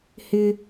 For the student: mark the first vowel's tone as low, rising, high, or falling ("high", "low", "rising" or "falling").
high